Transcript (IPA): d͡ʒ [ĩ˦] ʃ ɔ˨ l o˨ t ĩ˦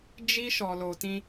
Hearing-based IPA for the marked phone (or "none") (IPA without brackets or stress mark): i˦